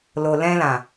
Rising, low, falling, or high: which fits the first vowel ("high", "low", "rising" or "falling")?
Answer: low